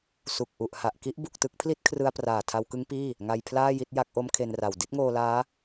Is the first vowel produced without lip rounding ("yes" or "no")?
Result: no